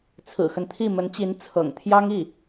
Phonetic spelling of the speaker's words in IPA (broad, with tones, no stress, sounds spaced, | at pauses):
t͡sʰ ɹ̩˨˩ x ə˦ n t̪ʰ i˥˩ m ə˧˥ n t͡ɕ i˧˥ n t͡sʰ ɤ̰˨˩ ŋ t̪ʰ j ɑ˥ ŋ i˥˩